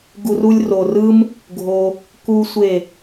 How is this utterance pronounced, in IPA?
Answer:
ɡ u˧ r u˦ lʲ r o˨ r ɯ˦ m | ɡʱ o˧ | k u˦ sʷ e˦˨

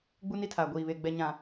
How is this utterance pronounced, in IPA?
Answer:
ɡ͡b u˦ n i˦ tʰ aː˨ ɡʷ iː˨ β e˨ ɡ͡b ɛ˨ ɲ ã˨

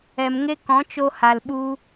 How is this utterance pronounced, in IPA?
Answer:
ɛ˨ m ŋ e˦ k ɔ̃˨˦ t͡ʃ o˧ h a˨ l ɓ u˧

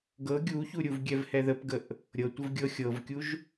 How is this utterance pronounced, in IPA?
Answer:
ɡ ɤ ɡʲ u ç u ɾʲ u v ɡʲ ɛ v h ɛ ð ə p ɡ ə ʔ | ɾʲ ɤ tʷ ə v ɡʲ ɤ xʲ ɤ v kʲ u ʒ

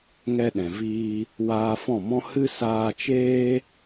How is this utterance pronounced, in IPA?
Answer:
ŋ ɛ˧ ɗ ɛ̃˨ v iː˧ | w aː˧ f ɔ̃˦˨ m ɔ̃˦ h ɨ˦ s aː˧ t͡ʃ eː˦

